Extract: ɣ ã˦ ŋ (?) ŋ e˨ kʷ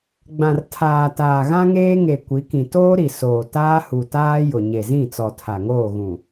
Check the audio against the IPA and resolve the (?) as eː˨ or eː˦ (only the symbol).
eː˦